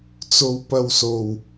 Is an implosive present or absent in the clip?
absent